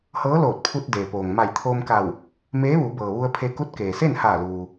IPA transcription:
h ɤː˧˥ l oː˧˩ t̚ pʰ u˧ t̚ d eː˩ p oː˩ ŋ m a˧˩ j t̪ʰ oː˧ m k a˧˩ w | m eː˧˥ ʋ u˩˧ b ɤː˩ ʋ u˧ ə̯ pʰ e˧ k u˧˥ t̚ k eː˩ s e˥˨ n h aː˧˩ l uː˩

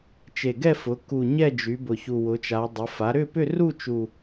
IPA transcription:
t͡ʃ e˨˩ ɡ ɛ˥˧ f ʊ˩˧ k u˨˩ ɲ ɛ˥˧ d͡ʒ y˩˧ b ʊ˨˩ ç u˨˩ w ʊ˩˧ t͡ʃ a˩˧ dˤ ʊ˩˧ f a˩˧ ɾ ʏ˥˧ p ʏ˥˧ r u˥˧ t͡ʃ u˨˩

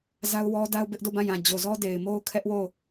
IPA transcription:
z a˦ ʊ̯ w ɔ˦ d a˦ ʊ̯ b ɪ˦ ʔ d o˦˨ b ã˦˨ j ã˨ d͡ʑ o˨ z ɔ˦ d e˨ ɪ̯ m o˦ ʊ̯ kʰ ɛ˦ ʔ w o˦˨

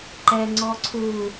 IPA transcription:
ǃ ɛ ŋ͡ǀ ɔ ǀʰ u

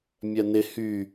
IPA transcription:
mʲ ɜ n ɪ h y

